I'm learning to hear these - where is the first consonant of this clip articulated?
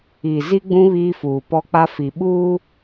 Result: tongue tip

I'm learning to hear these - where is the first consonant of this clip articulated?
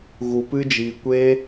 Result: velum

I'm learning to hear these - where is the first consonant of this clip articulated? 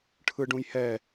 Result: retroflex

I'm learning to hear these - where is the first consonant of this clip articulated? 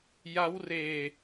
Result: palate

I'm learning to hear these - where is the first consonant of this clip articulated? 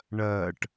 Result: retroflex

